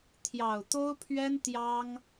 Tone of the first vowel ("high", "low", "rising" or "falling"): low